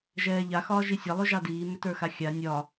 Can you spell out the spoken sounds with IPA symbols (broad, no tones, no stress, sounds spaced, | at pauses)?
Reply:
ʒ ɛː ʎ a x ɒː ʒ i sʲ ɑ lˠ ʏ ʒ ɑ d iː m ʏ t ə˞ x a xʲ a nʲ ɒ